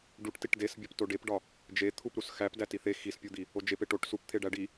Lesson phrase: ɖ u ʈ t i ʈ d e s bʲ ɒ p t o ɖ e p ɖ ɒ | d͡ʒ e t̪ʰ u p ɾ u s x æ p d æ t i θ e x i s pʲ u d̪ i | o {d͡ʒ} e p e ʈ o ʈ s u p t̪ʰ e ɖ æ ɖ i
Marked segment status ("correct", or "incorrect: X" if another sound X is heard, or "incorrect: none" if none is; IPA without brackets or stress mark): correct